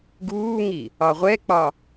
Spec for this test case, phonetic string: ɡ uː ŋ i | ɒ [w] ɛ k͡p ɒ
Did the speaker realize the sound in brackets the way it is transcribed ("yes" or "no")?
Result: no